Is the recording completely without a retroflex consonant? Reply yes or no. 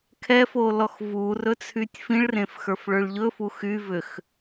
no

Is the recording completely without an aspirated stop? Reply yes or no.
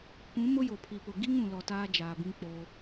no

